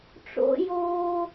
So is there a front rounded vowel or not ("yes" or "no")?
no